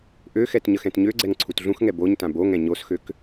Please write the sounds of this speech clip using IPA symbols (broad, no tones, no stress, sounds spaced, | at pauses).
ʔ ø x ɛ t ɲ ə x ɛ̃ t ɲ ø ɡ͡ǀ ɛ ŋ ǀʰ u t ɮ ũ x ŋ ɛ b o ɲ t ã b o ŋ ɛ̃ ɲ o s x ø k